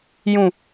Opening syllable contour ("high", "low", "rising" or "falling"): low